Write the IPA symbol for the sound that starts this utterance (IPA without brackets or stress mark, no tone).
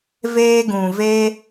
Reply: v